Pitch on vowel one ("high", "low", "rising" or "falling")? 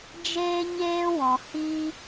high